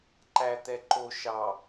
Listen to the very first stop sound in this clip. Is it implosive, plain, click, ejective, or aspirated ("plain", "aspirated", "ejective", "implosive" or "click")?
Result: click